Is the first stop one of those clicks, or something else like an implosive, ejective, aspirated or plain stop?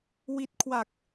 plain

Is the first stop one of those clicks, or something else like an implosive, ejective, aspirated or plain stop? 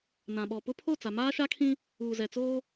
implosive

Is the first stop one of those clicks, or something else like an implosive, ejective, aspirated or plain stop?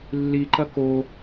click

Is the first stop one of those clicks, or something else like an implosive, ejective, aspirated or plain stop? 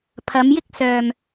aspirated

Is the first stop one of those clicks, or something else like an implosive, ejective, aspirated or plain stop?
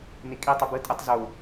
ejective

